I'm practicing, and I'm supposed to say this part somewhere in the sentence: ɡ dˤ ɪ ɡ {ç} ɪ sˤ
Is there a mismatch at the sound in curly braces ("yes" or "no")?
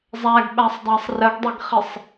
yes